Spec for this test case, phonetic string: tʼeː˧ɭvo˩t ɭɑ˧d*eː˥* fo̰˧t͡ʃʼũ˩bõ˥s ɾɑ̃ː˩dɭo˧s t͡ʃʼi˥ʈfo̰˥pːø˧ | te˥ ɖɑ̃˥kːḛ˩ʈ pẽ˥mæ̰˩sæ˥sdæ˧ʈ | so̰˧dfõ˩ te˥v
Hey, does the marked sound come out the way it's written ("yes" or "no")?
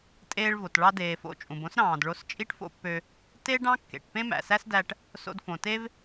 no